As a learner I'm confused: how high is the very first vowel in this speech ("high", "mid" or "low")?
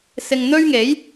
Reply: high